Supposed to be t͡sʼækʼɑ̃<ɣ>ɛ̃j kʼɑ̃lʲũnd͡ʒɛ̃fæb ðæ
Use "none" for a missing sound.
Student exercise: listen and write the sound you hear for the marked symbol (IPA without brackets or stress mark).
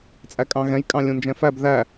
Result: ɣ